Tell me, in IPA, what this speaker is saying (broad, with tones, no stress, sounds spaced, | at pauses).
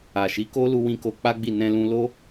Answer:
a˨ ʃ i˨˦ k o˦ l u˧ w ĩ˧ k o˧ k͡p a˦ ɡ͡b i˦˨ n ɛ̃˧ l ũ˧ l o˦